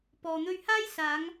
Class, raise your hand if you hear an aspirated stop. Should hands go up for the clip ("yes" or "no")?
no